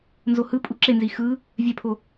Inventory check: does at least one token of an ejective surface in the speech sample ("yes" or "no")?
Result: yes